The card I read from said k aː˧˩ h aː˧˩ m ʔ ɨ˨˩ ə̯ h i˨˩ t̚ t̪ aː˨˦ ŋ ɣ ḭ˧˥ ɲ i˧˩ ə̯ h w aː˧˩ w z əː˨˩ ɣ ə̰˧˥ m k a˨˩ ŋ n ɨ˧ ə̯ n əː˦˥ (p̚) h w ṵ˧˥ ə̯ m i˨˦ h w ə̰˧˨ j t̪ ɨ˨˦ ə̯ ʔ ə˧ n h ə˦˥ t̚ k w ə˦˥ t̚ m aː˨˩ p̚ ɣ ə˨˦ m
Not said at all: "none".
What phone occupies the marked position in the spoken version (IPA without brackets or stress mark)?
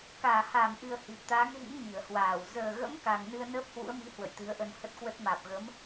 p̚